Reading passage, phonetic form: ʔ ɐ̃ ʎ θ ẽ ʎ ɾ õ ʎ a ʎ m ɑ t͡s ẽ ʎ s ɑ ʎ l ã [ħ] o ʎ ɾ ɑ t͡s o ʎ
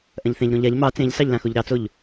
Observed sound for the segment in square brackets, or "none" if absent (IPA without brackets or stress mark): x